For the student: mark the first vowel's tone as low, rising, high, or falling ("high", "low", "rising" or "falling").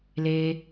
high